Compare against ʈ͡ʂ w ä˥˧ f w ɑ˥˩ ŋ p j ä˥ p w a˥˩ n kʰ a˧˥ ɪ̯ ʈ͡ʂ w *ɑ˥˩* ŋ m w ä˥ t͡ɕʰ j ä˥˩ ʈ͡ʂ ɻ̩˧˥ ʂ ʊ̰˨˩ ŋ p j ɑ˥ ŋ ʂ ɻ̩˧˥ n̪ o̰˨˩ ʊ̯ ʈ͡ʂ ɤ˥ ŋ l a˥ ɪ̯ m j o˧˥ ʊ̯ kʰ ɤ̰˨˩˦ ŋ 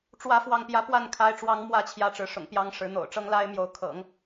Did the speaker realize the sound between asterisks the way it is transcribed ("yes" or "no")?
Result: no